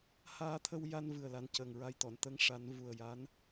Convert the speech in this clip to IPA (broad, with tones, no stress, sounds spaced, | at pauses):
h aː˧ t̪ʰ ə˧ w j a˧ n v ɨ˨˩ ə̯ l a˨˩ n c əː˨˩ ŋ ɹ a˧ j t̪ ɔ˨˩˨ n t̪ ə˧˥ ŋ ʂ a˨˩˦ n v u˨˩ ə̯ j a˧˥ n